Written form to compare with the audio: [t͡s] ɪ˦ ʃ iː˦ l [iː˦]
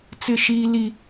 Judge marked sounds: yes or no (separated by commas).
yes, no